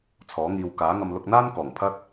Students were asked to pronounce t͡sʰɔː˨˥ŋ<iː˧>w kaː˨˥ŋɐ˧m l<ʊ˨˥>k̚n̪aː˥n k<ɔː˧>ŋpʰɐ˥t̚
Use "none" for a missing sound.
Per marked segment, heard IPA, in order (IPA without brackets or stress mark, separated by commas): iː˧, ʊ˧, ɔː˨˩